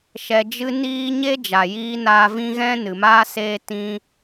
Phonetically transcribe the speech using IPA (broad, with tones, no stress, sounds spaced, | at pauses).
ʃ ɛ˨ d͡ʒ ɨ˧ n iː˦ ɲ e˦ d͡ʒ a˨ j iː˧ n aː˧ v ĩ˦ ɣ ɛ̃˦ n ɨ˨ m aː˦ s eː˦ t ĩ˦